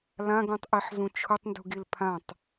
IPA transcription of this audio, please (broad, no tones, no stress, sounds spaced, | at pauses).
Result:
l ã ɡ ũ tˤ ʔ i ħ z ũ t͡ʃʰ ʊ tˤ n d ṳ ɡ i l pʰ ã tˤ